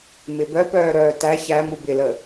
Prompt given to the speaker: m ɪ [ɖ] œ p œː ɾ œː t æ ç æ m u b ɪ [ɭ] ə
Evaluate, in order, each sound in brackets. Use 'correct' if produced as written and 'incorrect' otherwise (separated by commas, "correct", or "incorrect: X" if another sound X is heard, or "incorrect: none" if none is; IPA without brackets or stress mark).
incorrect: b, incorrect: l